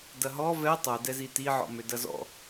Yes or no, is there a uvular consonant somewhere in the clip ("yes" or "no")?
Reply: no